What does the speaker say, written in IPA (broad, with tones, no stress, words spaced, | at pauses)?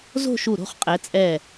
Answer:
zo̤˥˧ʃu˧˩ɾo̤˥˧χ qʼɛ˩˧t͡sʼɛ˧˩